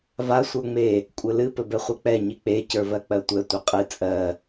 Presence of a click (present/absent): absent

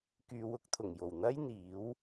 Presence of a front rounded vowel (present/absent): present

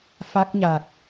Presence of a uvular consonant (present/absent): absent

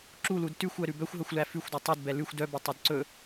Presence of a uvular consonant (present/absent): absent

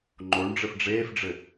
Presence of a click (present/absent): present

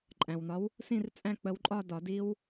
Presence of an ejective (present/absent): present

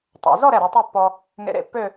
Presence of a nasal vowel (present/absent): absent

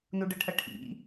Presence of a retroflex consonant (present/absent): present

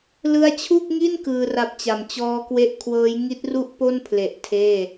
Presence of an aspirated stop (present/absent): present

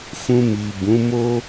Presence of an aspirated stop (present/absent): absent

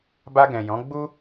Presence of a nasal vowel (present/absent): present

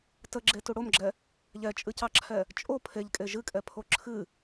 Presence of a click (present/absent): present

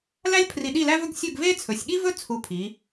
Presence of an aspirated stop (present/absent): present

